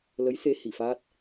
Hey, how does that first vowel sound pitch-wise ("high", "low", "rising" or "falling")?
rising